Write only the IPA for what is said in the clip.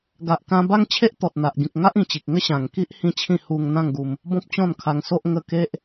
ɡa˨ʔkã˧ ba˦ŋt͡ɕʰe˦ʔt̪ɔ˨t̚ n̪a˨ʔɡĩ˨k̚ ŋa˦ʔĩ˨˩t͡ɕi˨k̚ŋə˦ ɕã˨˩ŋki˦ʔ hĩ˥˧t͡ɕʰĩ˥˧ hu˧ŋ n̪ã˥˧ŋɡu˧m | bɔ̃˦p̚t͡ɕɔ̃˥˧nkʰa˧ŋso˦ʔ ŋə˧ke˦ʔ

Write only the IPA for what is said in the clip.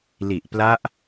li˨˩ʔpla˦˥ʔ

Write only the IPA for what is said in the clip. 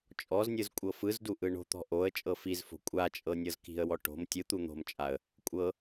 t͡ʃʼɔznʲɯz kʷʼɤfɯzdu ʔɯɳo̤t̪ɔ̤ ʔoə̯ t͡ʃʼɤfizfo̤ kʷʼat͡ʃʼɤ nʲɤzki̤ə̯wɔ ʈo̤m tʲɯt̪u n̪o̤mt͡ʃʼaə̯ | kʷʼɤ

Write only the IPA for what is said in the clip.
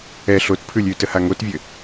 ɛ ɬotpʰʉlʲ ʉtəha ŋotvʲɘ

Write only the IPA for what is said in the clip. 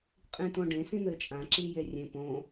qʼĩt̪õɖẽ sĩn̪ɘt͡ʃʼã ǁijerʲẽ põ

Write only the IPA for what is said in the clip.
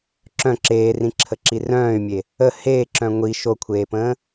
ǁœ̃ ǁeːrĩǁʰəǁi rœ̃ːy̯mʲe | ə heːǁœ̃ ŋʷi ʃokʷʰeːpə̃ː

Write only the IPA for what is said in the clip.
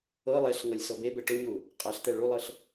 ɤ lˠɛɬŋɤlʲ sɤbebɛ ʈoɲu | qʼaɬt̪ɛ ɭulˠɤɬ

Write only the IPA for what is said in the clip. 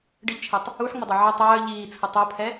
ɖɪʎt͡ʃʰɛtˤ | uħŋ͡mɪdˤɐ ʕœ tˤœː ʎiːt͡sʰə tˤopʰɛ

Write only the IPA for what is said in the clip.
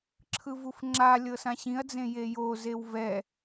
ǁʰɯvufŋ͡ǁa lʲɤsãɕĩɐ̯d͡zẽ jejozew vɛ

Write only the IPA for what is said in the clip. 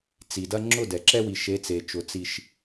t͡si˨dɐ˦ŋ͡ǁʊ˦˨ dɛ˨ǁɛ˦wi˨ ʃe˨˦t͡se˨t͡ʃʊ˨ t͡si˦ʃ

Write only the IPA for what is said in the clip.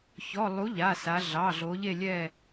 çɔ˩˧˩ lˠu˨˥ʎa˩˧˩sa˩˧ ɮɑ˩˧˩ɮo˩˧ʎe˦˨ lʲɛ˦˨

